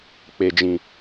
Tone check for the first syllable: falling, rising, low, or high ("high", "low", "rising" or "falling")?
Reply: low